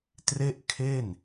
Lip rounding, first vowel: unrounded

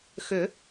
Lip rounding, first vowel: rounded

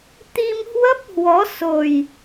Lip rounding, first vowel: unrounded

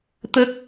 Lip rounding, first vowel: unrounded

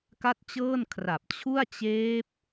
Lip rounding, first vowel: unrounded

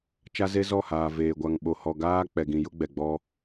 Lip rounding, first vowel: unrounded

